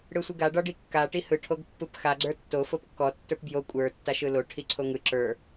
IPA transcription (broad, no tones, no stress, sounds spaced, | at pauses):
ɽ ɯ sʷ i ɡ a ɖ ɒ ɖ i kː a ʈ i h ɯ ʈʰ o ɡ pː ɯ p x a ɡ͡ǀ ə˞ tː o f o p kː ɔ tː ə˞ p b j o kʷʼ ə˞ tː a ʃ ɯ l o ʈʰ i ǀʰ o ŋ ɯ ǁ ə˞